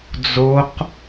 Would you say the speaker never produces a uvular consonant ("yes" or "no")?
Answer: no